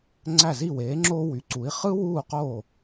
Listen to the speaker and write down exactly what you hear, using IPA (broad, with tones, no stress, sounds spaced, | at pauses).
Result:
ŋ͡ǀ æ˧˩ z i˧˩ w eː˩˧ ŋ͡ǁ oː˧ w y˩˧ ǀ u˩˧ i̯ χ ɯ˥ w uː˧˩ q oː˧˩